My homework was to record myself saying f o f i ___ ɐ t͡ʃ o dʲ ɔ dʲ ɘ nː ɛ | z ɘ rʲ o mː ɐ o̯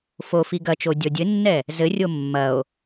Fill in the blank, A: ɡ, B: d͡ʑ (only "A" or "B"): A